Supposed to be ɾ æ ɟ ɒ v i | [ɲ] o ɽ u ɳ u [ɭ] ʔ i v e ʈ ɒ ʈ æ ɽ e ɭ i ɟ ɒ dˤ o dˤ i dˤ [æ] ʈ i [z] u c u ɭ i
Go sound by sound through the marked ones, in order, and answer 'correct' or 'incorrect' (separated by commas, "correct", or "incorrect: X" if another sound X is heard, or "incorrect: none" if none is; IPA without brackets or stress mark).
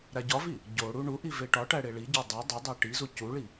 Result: incorrect: ɟ, incorrect: none, correct, correct